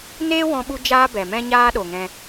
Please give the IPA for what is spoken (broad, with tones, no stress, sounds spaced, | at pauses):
n eː˦ w ɔ̃˧ ɓ u˧ d͡ʒ aː˦ b ɛ˨ m ɛ̃˦ ɲ aː˦ ɗ o˨ ŋ ɛ̃˧